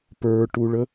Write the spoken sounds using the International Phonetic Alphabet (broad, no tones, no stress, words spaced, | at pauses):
pə˞ʈuɭə